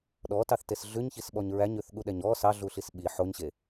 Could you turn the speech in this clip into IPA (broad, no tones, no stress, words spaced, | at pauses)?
ɗɔtɑθtes ɮʉɲçisɓɔɲ ɹæɲʉθɠuɗɛɲ ɔ sɑɮuɬis ɓi ħoɲɕe